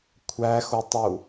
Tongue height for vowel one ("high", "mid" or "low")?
low